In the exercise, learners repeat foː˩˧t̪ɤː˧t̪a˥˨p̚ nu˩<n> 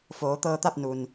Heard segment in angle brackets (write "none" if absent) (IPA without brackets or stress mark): n